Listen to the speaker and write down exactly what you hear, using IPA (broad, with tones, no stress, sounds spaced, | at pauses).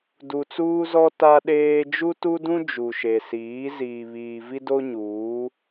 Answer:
d u˨ t͡s uː˦ z ɔ˦ t a˦ ɗ eː˦ d͡ʒ u˦ t u˦ d ũ˦ d͡ʒ u˨ ʃ e˨ s iː˨˦ z iː˨ β iː˨ v i˦ d o˦ ɲ uː˨˦